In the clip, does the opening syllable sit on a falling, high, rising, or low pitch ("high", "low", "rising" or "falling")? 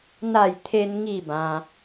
falling